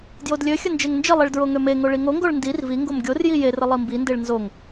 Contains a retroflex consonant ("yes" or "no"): yes